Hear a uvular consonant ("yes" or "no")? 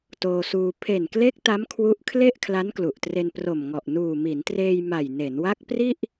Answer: no